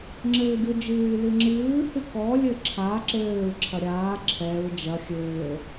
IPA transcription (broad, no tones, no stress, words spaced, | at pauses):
ŋ͡ǁɘːɡʲod͡ʒɨː lɨŋ͡ǁɨː hɨkɔ lʲɘǁʰa ǁɘːɹ ǁʰɐɾʲaː ǁʰɛɹ d͡ʒɐ xʲɘː